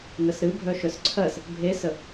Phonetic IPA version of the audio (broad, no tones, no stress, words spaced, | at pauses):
nəsɾɨ bʱœʃœsǀʰɜs | bʱesə